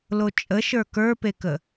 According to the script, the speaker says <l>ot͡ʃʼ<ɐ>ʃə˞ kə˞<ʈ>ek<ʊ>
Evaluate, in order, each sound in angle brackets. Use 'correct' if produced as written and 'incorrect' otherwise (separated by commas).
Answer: correct, incorrect, incorrect, incorrect